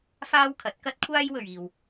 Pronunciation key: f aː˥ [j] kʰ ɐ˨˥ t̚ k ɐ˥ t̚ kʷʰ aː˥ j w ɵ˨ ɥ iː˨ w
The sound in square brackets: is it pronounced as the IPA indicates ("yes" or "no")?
no